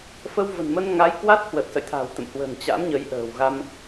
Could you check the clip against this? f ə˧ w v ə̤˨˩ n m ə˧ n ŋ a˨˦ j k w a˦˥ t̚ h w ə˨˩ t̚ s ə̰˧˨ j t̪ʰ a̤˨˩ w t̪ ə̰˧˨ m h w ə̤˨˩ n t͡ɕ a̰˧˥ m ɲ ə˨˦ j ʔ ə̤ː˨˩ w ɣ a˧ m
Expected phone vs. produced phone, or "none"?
none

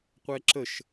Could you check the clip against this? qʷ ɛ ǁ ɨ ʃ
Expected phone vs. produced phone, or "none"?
ɨ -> ə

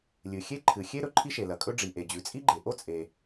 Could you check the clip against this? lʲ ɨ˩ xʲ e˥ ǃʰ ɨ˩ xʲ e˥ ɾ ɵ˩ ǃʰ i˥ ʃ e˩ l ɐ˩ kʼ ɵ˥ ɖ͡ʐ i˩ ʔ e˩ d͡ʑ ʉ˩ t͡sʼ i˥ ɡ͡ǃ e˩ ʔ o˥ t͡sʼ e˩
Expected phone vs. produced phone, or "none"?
none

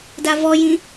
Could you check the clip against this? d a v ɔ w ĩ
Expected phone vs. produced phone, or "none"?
w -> j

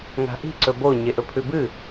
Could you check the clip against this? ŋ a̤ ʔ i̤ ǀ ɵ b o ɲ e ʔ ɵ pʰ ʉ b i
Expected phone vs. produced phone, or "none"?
i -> ɨ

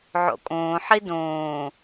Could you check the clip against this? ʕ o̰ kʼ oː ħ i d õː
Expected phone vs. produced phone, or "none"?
oː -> õː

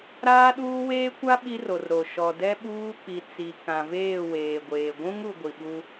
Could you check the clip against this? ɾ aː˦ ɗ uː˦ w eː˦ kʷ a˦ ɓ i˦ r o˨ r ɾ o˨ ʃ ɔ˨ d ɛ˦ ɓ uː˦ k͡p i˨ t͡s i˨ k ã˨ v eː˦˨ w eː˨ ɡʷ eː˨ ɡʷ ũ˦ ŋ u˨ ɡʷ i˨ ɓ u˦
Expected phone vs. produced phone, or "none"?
none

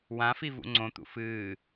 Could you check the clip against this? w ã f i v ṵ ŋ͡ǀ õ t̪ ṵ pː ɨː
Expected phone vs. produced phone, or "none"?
pː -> f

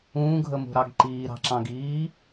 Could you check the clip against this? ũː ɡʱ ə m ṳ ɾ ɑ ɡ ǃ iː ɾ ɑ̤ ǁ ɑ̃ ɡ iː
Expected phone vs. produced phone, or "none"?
none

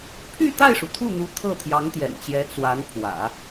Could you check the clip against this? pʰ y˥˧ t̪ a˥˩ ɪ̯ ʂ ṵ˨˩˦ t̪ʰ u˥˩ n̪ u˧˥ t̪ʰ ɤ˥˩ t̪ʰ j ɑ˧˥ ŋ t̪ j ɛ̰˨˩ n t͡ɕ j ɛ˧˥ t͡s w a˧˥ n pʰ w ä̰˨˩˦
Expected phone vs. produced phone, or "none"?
ṵ˨˩˦ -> u˩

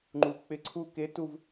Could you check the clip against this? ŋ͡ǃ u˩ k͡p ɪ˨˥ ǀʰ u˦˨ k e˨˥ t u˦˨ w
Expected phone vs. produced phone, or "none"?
w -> v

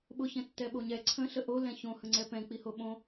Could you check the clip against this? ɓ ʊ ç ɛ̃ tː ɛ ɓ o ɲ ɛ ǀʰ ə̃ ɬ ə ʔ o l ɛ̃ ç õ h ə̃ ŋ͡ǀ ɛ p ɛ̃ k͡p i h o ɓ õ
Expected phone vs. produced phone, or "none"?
none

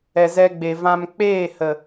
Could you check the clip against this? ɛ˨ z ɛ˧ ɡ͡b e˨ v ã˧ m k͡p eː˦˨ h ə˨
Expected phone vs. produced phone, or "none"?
none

